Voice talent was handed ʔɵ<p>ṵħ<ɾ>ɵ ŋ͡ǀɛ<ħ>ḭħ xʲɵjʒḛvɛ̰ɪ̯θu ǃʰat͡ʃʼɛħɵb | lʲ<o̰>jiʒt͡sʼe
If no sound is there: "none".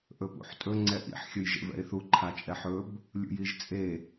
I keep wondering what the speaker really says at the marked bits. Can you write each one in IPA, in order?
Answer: p, tʼ, ʔ, ṵ

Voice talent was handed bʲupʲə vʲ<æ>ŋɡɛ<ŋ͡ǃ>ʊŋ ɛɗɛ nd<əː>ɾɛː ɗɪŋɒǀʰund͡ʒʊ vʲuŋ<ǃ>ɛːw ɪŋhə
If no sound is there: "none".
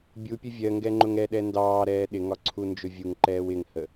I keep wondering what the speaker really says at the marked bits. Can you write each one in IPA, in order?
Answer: ɜ, ŋ͡ǃ, ɑː, ǃ

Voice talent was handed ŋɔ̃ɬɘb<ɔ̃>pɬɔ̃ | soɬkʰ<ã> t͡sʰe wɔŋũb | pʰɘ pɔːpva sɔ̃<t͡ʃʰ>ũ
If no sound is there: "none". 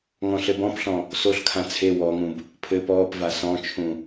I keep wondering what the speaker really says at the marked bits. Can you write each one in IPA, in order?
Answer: ɔ̃, ã, t͡ʃʰ

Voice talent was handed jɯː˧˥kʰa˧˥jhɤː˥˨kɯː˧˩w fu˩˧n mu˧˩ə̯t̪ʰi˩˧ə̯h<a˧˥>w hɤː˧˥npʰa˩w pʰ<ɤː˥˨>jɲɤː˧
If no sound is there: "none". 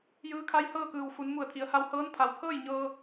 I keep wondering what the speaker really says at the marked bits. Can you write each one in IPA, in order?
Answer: a˧, ɤː˥˨

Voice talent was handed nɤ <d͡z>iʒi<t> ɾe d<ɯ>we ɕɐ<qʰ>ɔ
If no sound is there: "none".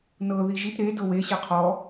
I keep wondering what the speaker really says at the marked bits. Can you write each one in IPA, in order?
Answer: ð, t, ɤ, qʰ

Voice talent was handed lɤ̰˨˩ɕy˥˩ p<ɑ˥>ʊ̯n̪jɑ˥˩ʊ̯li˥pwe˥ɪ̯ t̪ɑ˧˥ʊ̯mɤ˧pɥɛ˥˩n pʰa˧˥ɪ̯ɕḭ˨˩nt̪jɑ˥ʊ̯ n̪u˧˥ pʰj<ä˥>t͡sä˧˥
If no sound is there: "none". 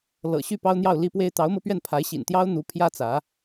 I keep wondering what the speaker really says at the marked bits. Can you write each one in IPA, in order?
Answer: ɑ˥, ä˥

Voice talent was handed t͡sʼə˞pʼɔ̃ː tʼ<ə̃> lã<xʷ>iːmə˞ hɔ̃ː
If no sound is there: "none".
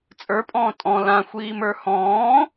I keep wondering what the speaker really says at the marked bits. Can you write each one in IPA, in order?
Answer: ɔ̃, xʷ

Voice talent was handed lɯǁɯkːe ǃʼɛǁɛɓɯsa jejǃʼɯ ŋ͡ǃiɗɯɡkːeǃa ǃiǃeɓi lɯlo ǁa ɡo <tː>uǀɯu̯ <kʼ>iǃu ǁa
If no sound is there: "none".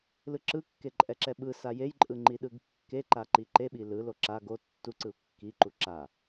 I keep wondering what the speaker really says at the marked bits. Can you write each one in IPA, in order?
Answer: tː, kː

